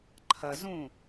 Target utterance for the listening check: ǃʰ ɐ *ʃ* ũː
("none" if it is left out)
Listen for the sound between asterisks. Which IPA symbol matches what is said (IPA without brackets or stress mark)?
z